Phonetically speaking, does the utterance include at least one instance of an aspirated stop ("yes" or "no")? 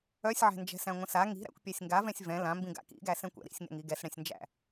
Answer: no